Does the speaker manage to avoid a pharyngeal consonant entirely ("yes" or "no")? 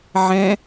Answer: no